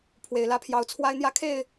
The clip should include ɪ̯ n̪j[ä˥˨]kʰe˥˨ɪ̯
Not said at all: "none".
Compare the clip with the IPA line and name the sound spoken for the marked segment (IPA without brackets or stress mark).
ä˥˨